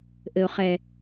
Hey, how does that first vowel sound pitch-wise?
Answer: low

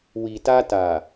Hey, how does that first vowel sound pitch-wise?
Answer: low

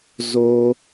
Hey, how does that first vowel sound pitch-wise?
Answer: high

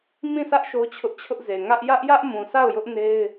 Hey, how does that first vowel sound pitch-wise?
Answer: falling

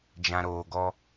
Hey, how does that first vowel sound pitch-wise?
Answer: low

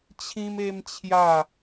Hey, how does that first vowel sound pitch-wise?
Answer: high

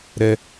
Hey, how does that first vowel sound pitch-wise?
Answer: high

